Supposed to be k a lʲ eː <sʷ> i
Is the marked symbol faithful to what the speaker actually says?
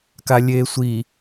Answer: yes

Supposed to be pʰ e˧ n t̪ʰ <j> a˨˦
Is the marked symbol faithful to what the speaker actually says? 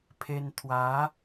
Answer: no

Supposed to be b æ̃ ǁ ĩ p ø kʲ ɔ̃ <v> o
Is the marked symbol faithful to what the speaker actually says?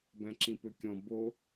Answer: no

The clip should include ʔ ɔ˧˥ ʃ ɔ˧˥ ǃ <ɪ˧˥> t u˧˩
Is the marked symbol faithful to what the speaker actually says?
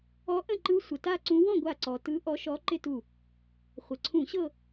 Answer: no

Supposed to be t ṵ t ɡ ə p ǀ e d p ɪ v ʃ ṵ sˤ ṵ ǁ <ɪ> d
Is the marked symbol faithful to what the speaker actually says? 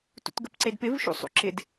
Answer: yes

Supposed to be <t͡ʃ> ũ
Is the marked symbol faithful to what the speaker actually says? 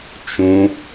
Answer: yes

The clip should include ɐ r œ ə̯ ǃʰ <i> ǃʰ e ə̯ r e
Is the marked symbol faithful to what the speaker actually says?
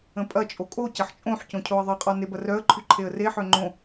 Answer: no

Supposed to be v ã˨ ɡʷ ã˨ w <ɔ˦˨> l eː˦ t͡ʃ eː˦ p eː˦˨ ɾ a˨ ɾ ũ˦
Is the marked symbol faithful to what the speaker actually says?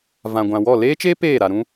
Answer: yes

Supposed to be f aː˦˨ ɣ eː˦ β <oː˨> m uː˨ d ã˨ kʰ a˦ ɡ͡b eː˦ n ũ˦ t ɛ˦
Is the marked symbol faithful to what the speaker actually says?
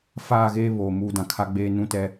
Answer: yes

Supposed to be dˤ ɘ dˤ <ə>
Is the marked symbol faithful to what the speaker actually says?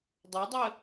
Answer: yes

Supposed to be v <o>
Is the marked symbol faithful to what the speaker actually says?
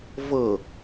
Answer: no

